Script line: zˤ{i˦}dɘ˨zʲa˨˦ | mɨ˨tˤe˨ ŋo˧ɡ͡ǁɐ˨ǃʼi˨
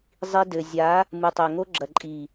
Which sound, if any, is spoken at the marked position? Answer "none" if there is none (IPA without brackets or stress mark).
i˧